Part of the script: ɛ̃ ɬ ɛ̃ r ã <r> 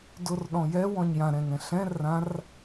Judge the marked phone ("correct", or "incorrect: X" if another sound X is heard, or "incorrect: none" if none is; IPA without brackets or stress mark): correct